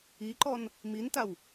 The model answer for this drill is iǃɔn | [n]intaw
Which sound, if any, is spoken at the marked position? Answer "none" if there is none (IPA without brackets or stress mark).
m